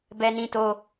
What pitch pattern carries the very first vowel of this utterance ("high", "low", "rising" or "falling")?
high